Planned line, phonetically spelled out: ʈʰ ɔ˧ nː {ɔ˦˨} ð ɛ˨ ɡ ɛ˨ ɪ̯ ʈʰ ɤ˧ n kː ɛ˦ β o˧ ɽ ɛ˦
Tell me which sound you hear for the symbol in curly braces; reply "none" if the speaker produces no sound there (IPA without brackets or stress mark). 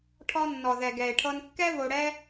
ɔ˨